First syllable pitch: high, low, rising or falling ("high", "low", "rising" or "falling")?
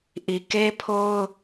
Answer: low